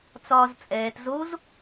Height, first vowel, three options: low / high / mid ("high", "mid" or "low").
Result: low